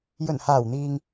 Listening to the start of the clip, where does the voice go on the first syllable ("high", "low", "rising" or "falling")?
low